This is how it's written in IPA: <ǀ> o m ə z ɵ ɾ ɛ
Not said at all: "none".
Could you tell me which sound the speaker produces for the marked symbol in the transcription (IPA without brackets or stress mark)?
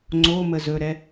ŋ͡ǀ